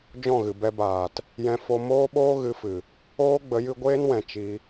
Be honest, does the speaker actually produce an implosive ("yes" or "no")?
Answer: yes